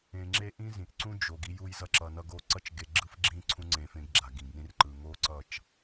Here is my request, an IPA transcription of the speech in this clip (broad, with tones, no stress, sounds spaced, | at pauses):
ẽ˨ ŋ͡ǁ e˧ ʔ ĩ˦ z ĩ˨ ʔ ǀ ũ˦ d͡ʒ o˨ ɡ i˧ j u˧ j z ʌ˧ ǁ ʌ˨ n ʌ˧ ɡ o˧ ǀ ʌ˦ t͡ʃ ɡ e˧ ɡ͡ǁ ɯ˦ f ɡ͡ǁ ĩ˦ ǀʰ ũ˦ ŋ͡ǀ ẽ˧ f ẽ˧ ɡ ɡ͡ǁ a˨ ɡ ĩ˨ ɡ n ĩ˧ r ǃ ɯ˨ ŋ o˦ ǀ ʌ˦˨ t͡ʃ